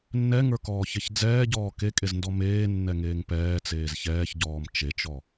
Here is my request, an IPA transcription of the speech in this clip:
nː ɛ ŋ ə˞ k ɔː ç ɛ ç d͡z ɛː ɟ ɔː k e kʼ e z n d ɔ m eː nː ɛ ŋ eː ŋ p ɛː t͡s eː z ç ɛː ç ɟ ɔː m t͡ʃ e t͡ʃ ɔ

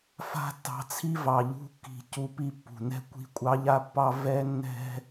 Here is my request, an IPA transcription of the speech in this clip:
f a̤˦ tː ɑ̤˧ t͡sʰ i˦ v ɑ˨ ʎ ṳ˧ kː i̤˨ c u˧ p i˧ pː ṳ˨ n ɛ̤˦ kʷ i̤˧ kʷʼ ɑ˧ ʎ a˧ pː ɑ˧ v ɛ˦ nː ɛ̤˦

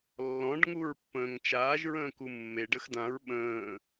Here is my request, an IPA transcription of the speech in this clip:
lː ɔ̃ ɖ ŋ u ɹ pː ə̃ː ŋ t͡ʃ aː ʒ ɹ ə̃ː k u mː e ɖ ə x d ã ɹ ɓ ə̃ː

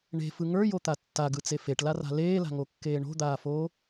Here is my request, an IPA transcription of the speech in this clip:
ɳ e̤ f ɯ ŋ ə˞ j o t̪ a tː a ɡ ɯ t͡s e f e ʈ l a r a̤ l eː l a̤ ŋ o kː eː ɳ o̤ d̪ aː f oː

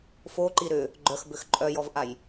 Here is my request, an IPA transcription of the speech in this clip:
f o ǃ i ɾ ʏ | ɡ͡ǃ œ x b ʏ x ǃʼ œ j ɔ v ʔ a j

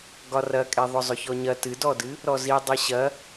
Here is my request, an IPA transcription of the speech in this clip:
ɡ ɒ r ɐ kʼ e ðˤ ʊ zˤ ʊ ç ɔ ɲ ɐ t ɨ d ɔ d ɨ | ɾ ɔ z i dˤ i ɕ ɐ

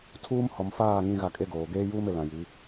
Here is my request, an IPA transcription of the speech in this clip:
tʰ uː˦ m h ɔ˨ m f aː˦˨ ŋ ĩ˦ ɣ a˦˨ kʼ e˦ ɡ oː˨ ɡ eː˦ j uː˦ m e˨ l ã˨ j i˨˦

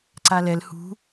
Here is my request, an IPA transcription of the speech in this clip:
ǀ a l ɛ l h ṳ

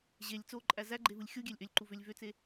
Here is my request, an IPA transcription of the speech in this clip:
ʑ e lʲ t͡s o ǃʼ æ z æ ɡ͡ǃ e v ɯ lʲ xʲ u ɡʲ æ lʲ ʔ ø lʲ ǃ u v ø lʲ v ø t͡s e

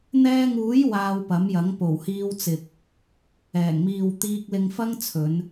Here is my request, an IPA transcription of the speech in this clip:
n̪ ɛː˧ ŋ uː˨˥ j w aː˧ w p ɐ˨˥ m j ɐ˨˥ ŋ p o˨˩ w h iː˧ w t͡s ɪ˨ k̚ | ɛː˨˩ ŋ m iː˨ w t̪ iː˧ k̚ l ɪ˧ ŋ f ɐ˥ ŋ t͡sʰ ɵ˨˧ n

